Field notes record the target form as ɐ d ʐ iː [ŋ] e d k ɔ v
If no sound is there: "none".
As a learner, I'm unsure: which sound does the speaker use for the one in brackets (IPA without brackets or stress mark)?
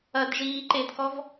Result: ǃ